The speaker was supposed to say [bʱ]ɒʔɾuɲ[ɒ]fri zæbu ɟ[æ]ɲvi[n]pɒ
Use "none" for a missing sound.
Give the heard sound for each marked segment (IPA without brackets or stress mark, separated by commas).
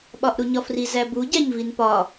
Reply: ɓ, ɒ, æ, n